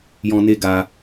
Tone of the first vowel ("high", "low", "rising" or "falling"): low